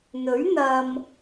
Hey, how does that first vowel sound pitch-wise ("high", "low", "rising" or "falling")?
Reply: rising